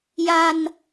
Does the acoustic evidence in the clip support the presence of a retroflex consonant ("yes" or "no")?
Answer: no